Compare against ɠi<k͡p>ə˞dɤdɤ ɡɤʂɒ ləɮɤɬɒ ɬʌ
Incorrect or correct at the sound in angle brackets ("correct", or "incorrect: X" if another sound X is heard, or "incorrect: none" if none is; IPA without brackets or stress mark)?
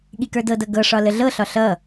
incorrect: k